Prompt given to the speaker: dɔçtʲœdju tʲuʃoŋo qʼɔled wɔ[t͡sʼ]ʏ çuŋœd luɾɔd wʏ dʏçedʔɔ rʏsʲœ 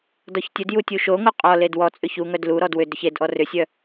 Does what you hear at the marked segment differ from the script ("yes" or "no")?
no